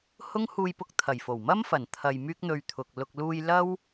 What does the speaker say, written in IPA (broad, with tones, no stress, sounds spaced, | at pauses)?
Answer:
h ʊ˥ ŋ h uː˧ j p ʊ˧ k̚ t̪ʰ ɐ˨˩ j f o˨˩ w m ɐ˥ m f ɐ˨˩ n t̪ʰ ɐ˨ j m yː˥ k̚ n̪ ɵ˧ ɥ t̪ʰ ʊ˨ k̚ l ʊ˨ k̚ l uː˧ j l ɐ˥ w